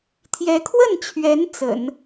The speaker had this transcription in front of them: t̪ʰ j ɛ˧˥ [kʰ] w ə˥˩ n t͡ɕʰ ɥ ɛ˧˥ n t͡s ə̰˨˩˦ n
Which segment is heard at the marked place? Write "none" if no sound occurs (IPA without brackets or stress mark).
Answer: kʰ